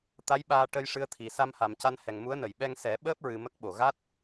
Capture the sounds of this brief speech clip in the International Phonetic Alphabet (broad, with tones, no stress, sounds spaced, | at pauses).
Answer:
t̪ a˧˥ j ɓ aː˧ ʈ ə˧ j ʂ ɨ˧˥ ə̯ t̪ʰ i˨˩ s a˧ m h a˨˩ m c a˧ n h ɛ˨˩ ŋ m u˧˥ ə̯ n ə˨˩˨ j ɓ ɛ˧ ŋ s ɛ˨˩˦ ɓ əː˦˥ p̚ ɹ ɨ˨˩ m ə˦˥ k̚ ɓ o˨˩ ɣ a˦˥ t̚